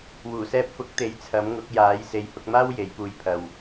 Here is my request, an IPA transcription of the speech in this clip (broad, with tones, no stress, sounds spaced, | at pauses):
w uː˨˩ s ɛː˧ p̚ f ʊ˨˥ k̚ t̪ e˨˥ j t͡sʰ ɐ˨˥ m ŋ ʊ˨˥ k̚ j aː˨˥ j s e˨˧ j h ʊ˧ k̚ m aː˥ w j e˨˥ j p uː˧ j pʰ ɐ˧ w